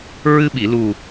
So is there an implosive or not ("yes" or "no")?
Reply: yes